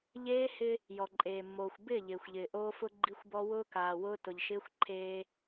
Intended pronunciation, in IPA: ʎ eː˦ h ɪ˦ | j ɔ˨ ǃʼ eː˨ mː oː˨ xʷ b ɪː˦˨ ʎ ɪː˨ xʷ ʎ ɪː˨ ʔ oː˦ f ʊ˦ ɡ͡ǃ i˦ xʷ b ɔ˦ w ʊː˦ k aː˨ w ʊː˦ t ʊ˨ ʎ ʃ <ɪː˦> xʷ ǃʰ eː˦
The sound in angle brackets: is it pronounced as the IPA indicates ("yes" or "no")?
yes